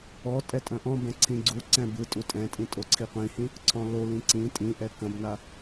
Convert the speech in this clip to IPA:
ɔ tʼɛtʼɐ̃ʔɔ̃bɛ̃ ǀʰĩɡ͡ǀuǀɛ̃ bɯtʼu tʼɛ̃tʼĩ tʼoǀʰiqʷĩhĩ | ǀʰɔ̃lolĩ ǀĩ tʼĩʔɛ kɐ̃bna

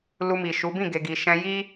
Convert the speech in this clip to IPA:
lu˧mi˨ʃu˨˦ bĩ˦˨ ɡe˨ɡi˨ ʃɛ̃˧ji˦

